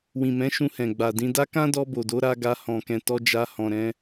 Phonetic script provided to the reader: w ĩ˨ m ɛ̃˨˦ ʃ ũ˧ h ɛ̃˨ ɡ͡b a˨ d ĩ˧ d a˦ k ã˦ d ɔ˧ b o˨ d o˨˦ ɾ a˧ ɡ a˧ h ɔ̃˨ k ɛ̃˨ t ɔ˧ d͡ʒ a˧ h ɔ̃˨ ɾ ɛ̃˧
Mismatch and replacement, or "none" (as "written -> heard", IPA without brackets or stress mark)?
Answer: none